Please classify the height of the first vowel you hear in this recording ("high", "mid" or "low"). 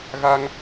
low